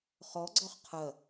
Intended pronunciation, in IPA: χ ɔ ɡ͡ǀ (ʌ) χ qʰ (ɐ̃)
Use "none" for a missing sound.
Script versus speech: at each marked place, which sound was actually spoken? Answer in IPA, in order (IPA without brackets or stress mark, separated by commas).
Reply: ɔ, ɐ